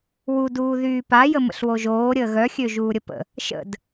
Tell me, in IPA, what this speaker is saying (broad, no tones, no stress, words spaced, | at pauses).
wud uːðyːpa jəmə̰ɬwoʒoː ɾʲəːɣœ xʲøʒuːɾʲəpə̰ | ʃə̰d